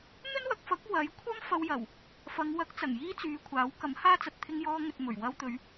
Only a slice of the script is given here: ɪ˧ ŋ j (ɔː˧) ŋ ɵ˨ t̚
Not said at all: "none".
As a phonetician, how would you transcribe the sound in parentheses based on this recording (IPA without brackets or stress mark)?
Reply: ɔː˧